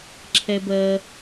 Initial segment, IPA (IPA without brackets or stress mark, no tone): ǁʰ